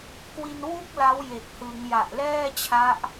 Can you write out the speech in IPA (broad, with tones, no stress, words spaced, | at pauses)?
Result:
kwi˧nwu˥˩k̚ la˦˥wje˨˩k̚hɯ˩˦ŋja˨˩ʔ lɛː˥˩t͡ɕʰa˦˥ʔ